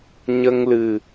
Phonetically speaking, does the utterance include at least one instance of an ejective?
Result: no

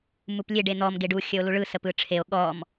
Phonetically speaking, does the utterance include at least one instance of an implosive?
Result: yes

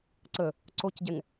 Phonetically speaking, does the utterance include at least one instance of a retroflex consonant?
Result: no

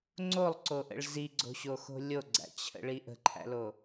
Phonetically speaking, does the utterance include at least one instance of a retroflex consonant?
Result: yes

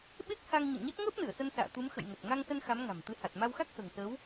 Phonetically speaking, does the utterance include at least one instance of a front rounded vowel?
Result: no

